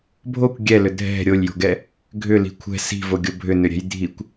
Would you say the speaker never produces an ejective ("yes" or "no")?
yes